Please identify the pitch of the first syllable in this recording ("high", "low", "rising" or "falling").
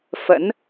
rising